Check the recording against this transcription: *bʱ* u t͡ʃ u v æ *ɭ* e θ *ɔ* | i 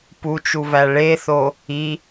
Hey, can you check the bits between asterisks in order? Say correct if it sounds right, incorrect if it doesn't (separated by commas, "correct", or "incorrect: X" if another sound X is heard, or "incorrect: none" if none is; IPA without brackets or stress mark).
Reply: incorrect: p, correct, incorrect: o